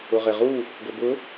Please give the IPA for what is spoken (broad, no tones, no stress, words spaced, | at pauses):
ʊʁeʁu | ɡʷebʊ